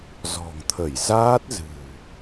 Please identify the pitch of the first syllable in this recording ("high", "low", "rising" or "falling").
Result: low